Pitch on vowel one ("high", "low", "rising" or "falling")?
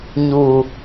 low